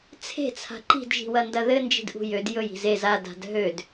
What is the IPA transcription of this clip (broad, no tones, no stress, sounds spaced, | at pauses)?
t͡sʰ e̤ t͡sʰ a̤ ǃ i̤ d ʒ i̤ w ɐ n d ɐ ð ɘ n d͡ʒ i̤ d ʔ ṳ j ø d j ɵ j i̤ z e z a d a̤ d ɦ ø d